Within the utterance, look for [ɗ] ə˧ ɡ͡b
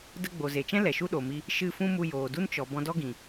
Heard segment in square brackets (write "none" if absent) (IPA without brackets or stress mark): d